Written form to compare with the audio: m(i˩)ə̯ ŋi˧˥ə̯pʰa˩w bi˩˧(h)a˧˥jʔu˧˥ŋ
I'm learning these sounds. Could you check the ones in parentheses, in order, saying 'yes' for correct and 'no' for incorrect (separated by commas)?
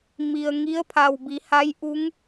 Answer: yes, yes